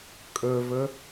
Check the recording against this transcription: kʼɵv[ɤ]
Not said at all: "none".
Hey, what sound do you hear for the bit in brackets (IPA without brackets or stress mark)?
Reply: ɵ